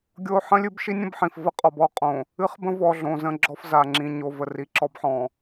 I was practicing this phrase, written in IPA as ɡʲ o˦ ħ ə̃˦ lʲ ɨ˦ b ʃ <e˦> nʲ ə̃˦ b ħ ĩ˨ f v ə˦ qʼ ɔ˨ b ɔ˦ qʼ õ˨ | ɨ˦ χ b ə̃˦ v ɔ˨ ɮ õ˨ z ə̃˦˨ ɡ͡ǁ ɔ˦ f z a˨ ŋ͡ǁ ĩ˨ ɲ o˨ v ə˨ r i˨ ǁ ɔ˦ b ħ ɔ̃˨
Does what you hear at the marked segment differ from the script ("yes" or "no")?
yes